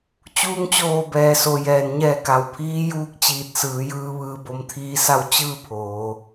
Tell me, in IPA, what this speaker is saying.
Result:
t͡ɕuː˧ŋt͡ɕoː˧˩bɛː˩so˩ jɛː˩nɲɛː˧˩ ka˩wpʰiː˧˥juː˧˥k̚ t͡ɕiː˧˩t̚sɯː˩˧jɯː˧ ʋɯː˧bo˧mt̪ʰiː˧˥sa˥˨w t͡ɕɯː˥˨ pʰoː˩˧

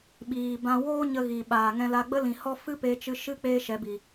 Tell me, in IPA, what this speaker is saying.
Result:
ɓiː˨bã˧woː˦ ɲə˧ ɣi˨ ɓaː˨ŋɛ̃˧la˧ɡ͡bə˦ lĩ˨hɔ˦ fɨ˦pe˧t͡ʃɨ˧ ʃɨ˦ k͡peː˦ʃɛ˨˦bi˨

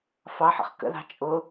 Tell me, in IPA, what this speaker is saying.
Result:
fɑħə̰χ kə̰ðɑ̤ t͡ʃʼʊ

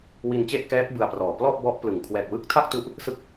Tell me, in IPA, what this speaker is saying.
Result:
wi˧nt͡ɕe˥˩ʔ kɛː˦˥k̚ bɯ˧a̯prɔː˨˩ plɔ˥˩ʔbɔ˦˥ʔ plɯ˨˩ŋ kʰwɛː˨˩k̚wɯ˦˥k̚ tʰa˥˩k̚tu˦˥ʔ | sɯ˦˥k̚

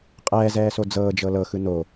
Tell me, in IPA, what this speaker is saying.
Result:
qʼɛːzɛːso d͡zɤːd͡ʒɤ lɤxɯ no

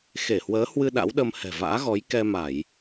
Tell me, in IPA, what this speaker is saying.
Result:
xe˧˩hwəː˨˦hwɨ˧ ɗa̰˧˥wɗə˧m hɛ̤˨˩va̰ː˧˥ ɣɔ˨˦jkɛ˧ma˧˩˨j

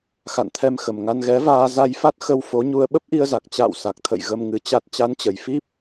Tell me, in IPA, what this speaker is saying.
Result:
xa̰˧˨nt̪ʰɛ˧mxə˨˩mŋa˧n ɣɛ˨˦vaː˧ za˧jfa˦˥t̚ xə˧w fo˨˦ɲu˧ə̯ ɓə˦˥p̚ʔi˧ə̯za˨˩k̚ t͡ɕa̰ː˧˨w sa˨˩k̚t̪ʰə̰˧˨j ɣə˧mŋɨ˨˦t͡ɕa˦˥t̚ t͡ɕa˨˦nt͡ɕə˨˩j fi˦˥p̚

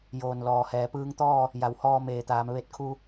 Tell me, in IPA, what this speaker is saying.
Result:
joː˧˩n lɔː˩hɛː˩˧pɯː˧ŋt̪ɔː˥˨ | ja˩˧whɔː˧meː˩t̪aː˩˧m ʋe˧t̚kʰu˧

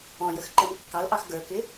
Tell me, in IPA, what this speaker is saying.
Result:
ɔ̃jəxǃɛm kːɑlʔɑx ɡə˞kɪ

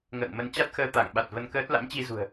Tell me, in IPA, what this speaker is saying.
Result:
ŋə̰ː˧˨ŋmə˧n t͡ɕa˦˥t̚xəː˧ t̪a˧˩ŋɓa˨˩t̚və˧nkəː˦˥t̚ la̰˧˥mt͡ɕi˧zṳ˨˩ə̯

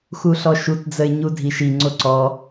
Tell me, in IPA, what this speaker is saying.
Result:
xuɬɔʃutd͡zəɪ̯ ɲudʱiʃiŋ͡ǀo ǀɔ

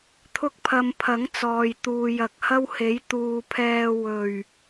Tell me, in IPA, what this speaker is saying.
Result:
t̪ʰʊ˥k̚pʰɐ˧m pʰɐ˨˥ŋ t͡sɔː˨jt̪uː˨jɐ˨k̚ hɐ˥whe˨˥j t̪uː˨ pʰɛː˧ wɵ˨˩ɥ

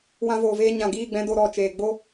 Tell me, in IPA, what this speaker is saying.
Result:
wã˧voː˨veː˧ɲã˨ ɡiː˦˨ɡ͡bɛ̃˧do˦˨ ɾɔ˦˨t͡ʃeː˨ ɡ͡bo˦

